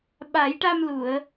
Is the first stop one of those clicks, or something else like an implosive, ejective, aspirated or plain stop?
implosive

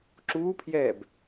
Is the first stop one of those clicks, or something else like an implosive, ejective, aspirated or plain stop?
click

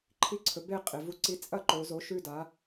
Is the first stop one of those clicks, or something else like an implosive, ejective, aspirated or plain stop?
click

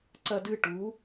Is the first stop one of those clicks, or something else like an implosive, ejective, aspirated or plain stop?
click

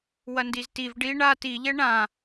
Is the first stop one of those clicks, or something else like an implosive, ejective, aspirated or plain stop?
plain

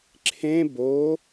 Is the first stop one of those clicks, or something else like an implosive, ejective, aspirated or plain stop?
click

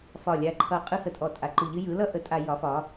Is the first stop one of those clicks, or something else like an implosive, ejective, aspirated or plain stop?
click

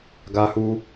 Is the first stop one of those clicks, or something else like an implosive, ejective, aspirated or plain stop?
plain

